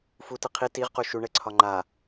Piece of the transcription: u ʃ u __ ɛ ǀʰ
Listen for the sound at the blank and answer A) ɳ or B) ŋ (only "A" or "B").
A